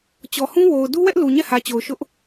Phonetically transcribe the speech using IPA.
t͡ɕɔ˨hũ˦ wo˨ʊ̯ du˦wɛ˦ʔ lu˨ɲɛ˦˨hä˨t͡ɕo˨ʊ̯ ʃʊ˦ʔ

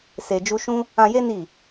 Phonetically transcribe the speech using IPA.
se˧d͡ʒu˦ ʃũ˦ | ã˧je˦ ni˦˨

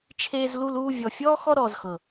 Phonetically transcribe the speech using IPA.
t͡ʃʰeː˧zlu˧luː˧ vʲɔ˨fʲɔː˦ xɔ˦ɾɔː˨zxɤ˨

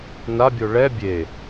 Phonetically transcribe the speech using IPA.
nabʲo ɭɛ bʲe

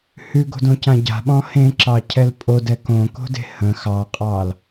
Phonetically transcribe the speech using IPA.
hʉɡo̤dõcã ɟa̤ɓɔ̃ hẽǁɑcʰɛl pʼodɛ kõko̤de̤ hə̃ xɑqʼɑl

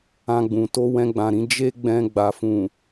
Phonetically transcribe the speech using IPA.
ã˧ɡ͡bũ˨ to˧wɛ̃˧ɡ͡bã˨ɾĩ˧ d͡ʒe˦ ɡ͡bɛ̃˧ ɡ͡ba˨fũ˨

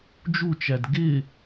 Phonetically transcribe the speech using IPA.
d͡ʒut͡ʃæd ɡɪ

